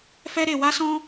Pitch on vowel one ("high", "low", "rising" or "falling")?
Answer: high